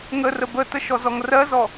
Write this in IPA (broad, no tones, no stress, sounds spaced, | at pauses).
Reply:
ŋ ə r ə b ə t ə ʃ ɔ z ɔ ŋ r ɜ z ɔ